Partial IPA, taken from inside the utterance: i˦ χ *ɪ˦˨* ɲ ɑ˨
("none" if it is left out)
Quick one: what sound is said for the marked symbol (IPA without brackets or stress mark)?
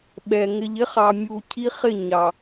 ɪ˦˨